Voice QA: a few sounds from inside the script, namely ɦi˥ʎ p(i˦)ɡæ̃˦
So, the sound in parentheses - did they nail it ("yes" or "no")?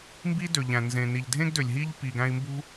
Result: no